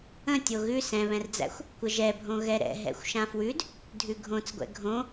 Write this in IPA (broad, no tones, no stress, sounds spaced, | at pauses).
ə̃ tʲ o ɣ ʉ s ɛ̃ β ɛ̃ r d͡z æ̰ xʷ | kʷ ə ʒ ɛ bʱ õ ɣ ɛ ɾ ɛ̰ ɦ ɛ̰ xʷ ʃ ã f w ʉ d | dʱ ʉ ɡʱ õ t͡s ɡʷ ɛ̰ ɡʱ õ